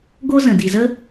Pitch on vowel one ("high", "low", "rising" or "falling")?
high